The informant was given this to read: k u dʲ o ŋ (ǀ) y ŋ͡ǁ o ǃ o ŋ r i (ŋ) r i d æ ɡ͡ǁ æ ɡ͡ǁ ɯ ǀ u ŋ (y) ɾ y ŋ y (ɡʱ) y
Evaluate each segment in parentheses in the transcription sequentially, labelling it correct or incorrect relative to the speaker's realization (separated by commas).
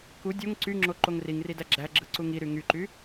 correct, correct, incorrect, incorrect